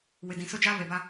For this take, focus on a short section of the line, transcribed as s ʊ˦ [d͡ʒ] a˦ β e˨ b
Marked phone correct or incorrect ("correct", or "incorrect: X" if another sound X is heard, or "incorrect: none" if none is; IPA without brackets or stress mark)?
correct